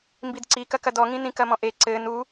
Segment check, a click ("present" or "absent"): present